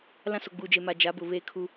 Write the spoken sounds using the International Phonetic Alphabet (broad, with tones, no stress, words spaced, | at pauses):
lã˦so˨ɡ͡buː˨d͡ʒe˨ ma˨d͡ʒa˨˦bʊ˨ βeː˦kʰu˦